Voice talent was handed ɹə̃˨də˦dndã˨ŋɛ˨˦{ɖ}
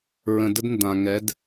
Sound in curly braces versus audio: incorrect: d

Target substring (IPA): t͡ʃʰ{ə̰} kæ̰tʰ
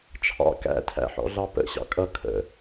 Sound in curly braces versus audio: incorrect: ɑ̰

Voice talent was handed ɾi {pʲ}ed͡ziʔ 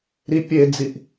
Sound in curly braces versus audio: correct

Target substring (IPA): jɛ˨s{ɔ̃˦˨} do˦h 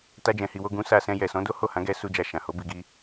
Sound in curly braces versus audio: incorrect: ɔ̃˨˦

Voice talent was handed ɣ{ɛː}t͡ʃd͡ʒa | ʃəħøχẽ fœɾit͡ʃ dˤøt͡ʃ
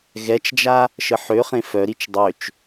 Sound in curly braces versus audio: incorrect: ɛ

